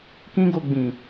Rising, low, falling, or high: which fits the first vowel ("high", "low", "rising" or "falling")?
high